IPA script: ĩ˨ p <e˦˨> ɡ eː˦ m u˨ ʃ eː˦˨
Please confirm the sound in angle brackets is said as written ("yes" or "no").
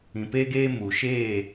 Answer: no